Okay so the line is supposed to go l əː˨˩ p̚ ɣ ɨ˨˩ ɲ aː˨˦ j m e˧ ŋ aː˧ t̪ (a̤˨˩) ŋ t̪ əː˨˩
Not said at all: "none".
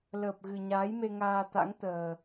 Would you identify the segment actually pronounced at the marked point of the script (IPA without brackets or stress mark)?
a̰˧˥